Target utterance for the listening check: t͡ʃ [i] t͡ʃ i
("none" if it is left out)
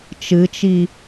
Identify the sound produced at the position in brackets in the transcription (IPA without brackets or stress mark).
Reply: ɨ